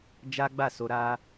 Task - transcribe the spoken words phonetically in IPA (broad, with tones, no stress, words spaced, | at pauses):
d͡ʒa˦ɡ͡ba˦˨so˧ ɾa˧